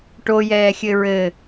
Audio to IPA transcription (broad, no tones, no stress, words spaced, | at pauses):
ʈojɛːxʲɘ ɹɘ